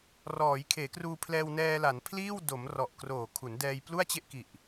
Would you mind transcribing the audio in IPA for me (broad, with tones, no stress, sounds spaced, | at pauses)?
r ɔː˩˦ j kʰ eː˩˦ k r uː˧ pʰ l ɛː˧ w n ɛː˧ l a˩˦ n pʰ l iː˥˩ w d o˩˦ m r ɔ˨˩ ʔ k r oː˨˩ kʰ u˩˦ n d ɛː˧ j p l u˥˩ a̯ t͡ɕ e˥˩ ʔ k i˨˩ ʔ